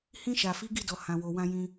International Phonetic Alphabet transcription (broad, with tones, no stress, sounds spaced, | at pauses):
h ĩ˧ ʃ a˨ f i˨˦ ɡ i˦˨ d ɔ˨ h ã˨ w o˨ w ã˧ j ĩ˧